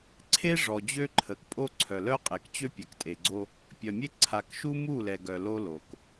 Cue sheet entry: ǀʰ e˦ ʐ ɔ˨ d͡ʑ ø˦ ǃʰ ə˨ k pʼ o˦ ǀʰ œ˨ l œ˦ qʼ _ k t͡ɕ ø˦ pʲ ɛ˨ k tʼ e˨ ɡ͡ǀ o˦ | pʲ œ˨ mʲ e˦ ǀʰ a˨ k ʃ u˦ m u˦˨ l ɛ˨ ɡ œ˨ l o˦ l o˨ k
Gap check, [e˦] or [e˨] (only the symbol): e˨